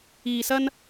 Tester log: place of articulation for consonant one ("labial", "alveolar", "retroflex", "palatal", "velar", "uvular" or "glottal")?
alveolar